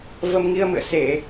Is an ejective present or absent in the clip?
absent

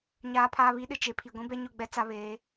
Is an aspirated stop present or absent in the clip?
present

